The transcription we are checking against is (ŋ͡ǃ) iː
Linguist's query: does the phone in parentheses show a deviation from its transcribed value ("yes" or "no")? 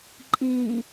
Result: yes